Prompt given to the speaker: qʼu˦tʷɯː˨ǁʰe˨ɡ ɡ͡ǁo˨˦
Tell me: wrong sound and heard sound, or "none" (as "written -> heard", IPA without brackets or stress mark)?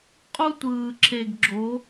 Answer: none